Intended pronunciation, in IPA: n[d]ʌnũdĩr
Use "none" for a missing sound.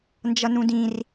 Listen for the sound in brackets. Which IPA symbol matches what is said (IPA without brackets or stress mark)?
d͡ʒ